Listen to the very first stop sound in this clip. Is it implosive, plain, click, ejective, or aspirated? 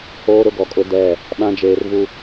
plain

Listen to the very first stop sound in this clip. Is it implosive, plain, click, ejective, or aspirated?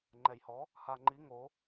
click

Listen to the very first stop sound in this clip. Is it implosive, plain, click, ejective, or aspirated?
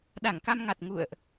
implosive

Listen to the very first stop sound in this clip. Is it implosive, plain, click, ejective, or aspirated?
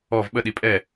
implosive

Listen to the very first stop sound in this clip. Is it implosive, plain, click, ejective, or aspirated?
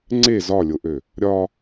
click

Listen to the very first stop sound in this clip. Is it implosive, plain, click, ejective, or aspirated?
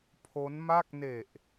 aspirated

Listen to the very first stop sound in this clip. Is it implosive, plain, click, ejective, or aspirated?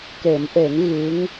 plain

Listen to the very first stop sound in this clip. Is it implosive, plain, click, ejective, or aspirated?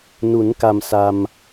plain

